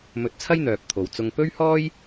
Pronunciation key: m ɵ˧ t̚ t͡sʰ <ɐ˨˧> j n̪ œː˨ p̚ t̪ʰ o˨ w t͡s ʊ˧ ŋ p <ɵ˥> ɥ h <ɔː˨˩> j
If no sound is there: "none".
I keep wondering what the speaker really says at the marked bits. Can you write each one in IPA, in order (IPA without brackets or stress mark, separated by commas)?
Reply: ɐ˥, ɵ˥, ɔː˥